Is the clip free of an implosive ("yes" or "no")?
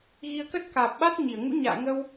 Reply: no